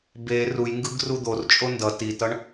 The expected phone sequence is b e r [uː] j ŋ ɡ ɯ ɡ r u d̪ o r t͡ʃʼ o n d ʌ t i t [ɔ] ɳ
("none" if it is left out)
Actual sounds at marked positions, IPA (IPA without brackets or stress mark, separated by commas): u, ʌ